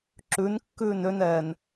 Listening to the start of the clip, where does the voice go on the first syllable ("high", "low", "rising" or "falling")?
rising